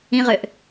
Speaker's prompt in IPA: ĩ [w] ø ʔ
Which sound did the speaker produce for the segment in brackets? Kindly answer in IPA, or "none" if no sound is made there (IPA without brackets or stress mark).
ʁ